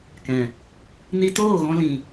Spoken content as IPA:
k ɛ̃˨ | n i˧ t oː˦˨ ɣ ɔ̃˧ l ĩ˨

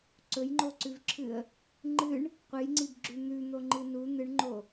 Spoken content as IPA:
ǀ ɵ j ŋ͡ǃ o ǀ ʉ v ǁʰ ɨ ə̯ | ŋ͡ǃ ɨ ɳ | qʷ ɨ j ŋ͡ǀ i b ɡ͡ǁ ʉ n̪ ʉ n̪ o ŋ͡ǃ ɨ n u n̪ ɨ ɳ ŋ͡ǃ o

